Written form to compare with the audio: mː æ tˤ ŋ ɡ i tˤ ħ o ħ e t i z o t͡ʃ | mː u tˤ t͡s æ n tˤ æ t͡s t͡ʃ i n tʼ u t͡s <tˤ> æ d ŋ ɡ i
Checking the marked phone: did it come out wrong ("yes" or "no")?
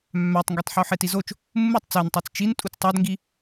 no